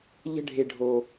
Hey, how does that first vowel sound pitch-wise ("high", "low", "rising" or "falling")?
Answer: high